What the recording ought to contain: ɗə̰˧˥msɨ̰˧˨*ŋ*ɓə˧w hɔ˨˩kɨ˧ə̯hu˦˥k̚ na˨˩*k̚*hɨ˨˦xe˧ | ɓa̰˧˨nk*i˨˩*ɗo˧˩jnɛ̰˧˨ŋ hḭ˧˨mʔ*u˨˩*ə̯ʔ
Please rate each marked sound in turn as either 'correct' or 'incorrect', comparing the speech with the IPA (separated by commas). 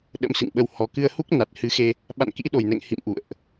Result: correct, incorrect, incorrect, incorrect